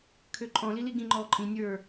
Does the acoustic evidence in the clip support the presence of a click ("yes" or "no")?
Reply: yes